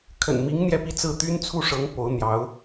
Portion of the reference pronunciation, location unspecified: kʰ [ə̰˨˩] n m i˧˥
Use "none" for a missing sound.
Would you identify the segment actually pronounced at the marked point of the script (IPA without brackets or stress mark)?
ə̰˨˩